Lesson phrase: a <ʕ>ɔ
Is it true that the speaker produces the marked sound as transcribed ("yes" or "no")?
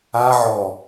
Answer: yes